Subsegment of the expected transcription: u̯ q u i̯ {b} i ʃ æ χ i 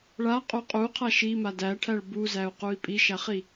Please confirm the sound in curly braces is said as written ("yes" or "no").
no